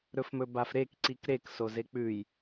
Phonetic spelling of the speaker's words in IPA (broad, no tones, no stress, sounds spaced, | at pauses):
ɾ ɵ f m ɵ b a f ɾ e k ǀ i k ɾ e k s o z e k͡p ʉ j